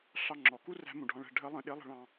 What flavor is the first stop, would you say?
click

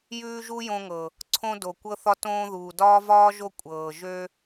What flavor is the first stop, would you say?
click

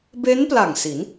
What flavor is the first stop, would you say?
plain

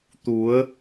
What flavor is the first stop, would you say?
plain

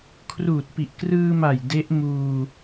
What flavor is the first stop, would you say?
aspirated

